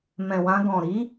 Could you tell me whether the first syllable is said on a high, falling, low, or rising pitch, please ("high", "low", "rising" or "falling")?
low